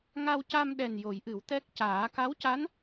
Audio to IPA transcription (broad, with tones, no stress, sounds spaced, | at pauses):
ŋ a˧ w c a˧ m ɗ ɛ˨˩ n j o˨˩˦ j ʔ ɨ˨˩˦ w t̪ ɛ˦˥ k̚ c aː˨˩˦ k a˧˥ w c a˧˥ n